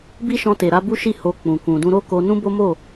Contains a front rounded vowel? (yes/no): no